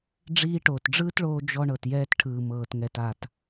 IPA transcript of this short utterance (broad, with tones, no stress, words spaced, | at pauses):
ɖ͡ʐiː˧ʈoː˨tɖ͡ʐɯː˦tɭoː˧ d͡ʒɔ˧ɳɤ˨tjɛː˧t ʈʰɯː˨mɤː˨tŋɛ˨t a˨t